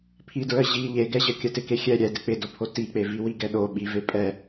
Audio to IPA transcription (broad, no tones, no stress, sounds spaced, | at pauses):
pʰ i d ɹ ə ʑ i ʎ e ɡ ɛ ʑ ə kʲ ə t ɪ k e xʲ ɛ ɾʲ ɛ d ɪ k͡p ɪ d o pʰ o t i k͡p e v i w i ɡ ɛ ɗ o ɓ i v e pʼ ɛ